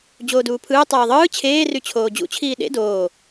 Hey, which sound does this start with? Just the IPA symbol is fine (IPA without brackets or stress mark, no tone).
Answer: d͡ʑ